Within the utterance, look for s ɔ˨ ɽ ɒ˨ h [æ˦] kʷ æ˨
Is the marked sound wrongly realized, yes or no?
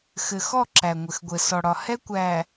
yes